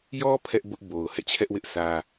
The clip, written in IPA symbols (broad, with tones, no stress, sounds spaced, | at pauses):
j ɔ˦ pʰ ɛ˦ ʔ b ʊ˦ ʔ b o˨ ʊ̯ h ɛ̰˦˨ t͡ɕʰ ɛ˦ ʔ w ɪ˦ ʔ s ä˦